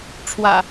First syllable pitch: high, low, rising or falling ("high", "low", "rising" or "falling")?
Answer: low